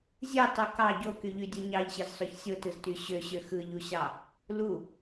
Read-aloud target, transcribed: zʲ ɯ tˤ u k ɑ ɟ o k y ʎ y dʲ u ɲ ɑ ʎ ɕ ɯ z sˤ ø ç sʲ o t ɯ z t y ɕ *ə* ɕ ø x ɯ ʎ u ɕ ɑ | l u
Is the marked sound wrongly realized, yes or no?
yes